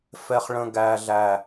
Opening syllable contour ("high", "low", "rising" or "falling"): low